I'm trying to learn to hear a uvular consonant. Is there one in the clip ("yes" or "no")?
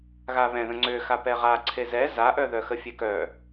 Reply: yes